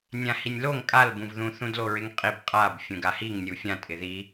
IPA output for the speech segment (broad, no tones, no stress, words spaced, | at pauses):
nʲãhinʲloŋ kʼalbũvðũ θũdloɹɪŋqʼib qʼab fʲũɡahiŋ nʲufʲã tʼɪði